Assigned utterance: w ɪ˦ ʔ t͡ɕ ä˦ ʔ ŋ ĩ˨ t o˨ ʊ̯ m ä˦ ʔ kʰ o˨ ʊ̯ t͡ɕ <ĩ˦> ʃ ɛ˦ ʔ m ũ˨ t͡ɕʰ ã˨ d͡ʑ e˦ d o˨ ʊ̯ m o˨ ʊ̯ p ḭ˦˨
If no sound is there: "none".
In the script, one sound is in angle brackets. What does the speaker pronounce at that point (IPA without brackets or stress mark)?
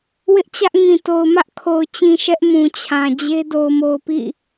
ĩ˨